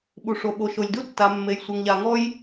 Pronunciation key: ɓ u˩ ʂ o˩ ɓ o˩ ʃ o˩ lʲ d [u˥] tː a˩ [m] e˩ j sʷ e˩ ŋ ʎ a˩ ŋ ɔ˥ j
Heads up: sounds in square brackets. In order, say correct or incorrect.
correct, incorrect

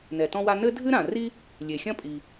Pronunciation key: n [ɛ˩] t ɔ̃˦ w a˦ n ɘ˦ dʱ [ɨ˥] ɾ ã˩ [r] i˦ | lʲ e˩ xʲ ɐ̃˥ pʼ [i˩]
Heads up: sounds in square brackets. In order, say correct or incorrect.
correct, incorrect, correct, correct

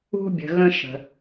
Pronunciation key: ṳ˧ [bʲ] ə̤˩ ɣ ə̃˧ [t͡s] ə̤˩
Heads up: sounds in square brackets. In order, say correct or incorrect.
correct, incorrect

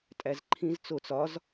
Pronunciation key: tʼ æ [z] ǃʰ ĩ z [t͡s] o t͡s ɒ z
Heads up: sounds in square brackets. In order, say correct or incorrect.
correct, correct

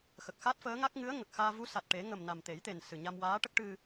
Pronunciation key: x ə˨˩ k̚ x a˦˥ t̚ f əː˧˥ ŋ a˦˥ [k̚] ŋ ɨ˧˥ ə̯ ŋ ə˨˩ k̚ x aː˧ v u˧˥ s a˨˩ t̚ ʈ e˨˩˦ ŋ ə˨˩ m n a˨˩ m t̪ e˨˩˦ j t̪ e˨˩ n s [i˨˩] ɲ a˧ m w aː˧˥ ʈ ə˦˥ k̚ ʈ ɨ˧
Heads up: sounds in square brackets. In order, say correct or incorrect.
correct, incorrect

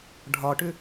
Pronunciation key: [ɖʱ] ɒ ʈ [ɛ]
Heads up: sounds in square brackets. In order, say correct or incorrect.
correct, incorrect

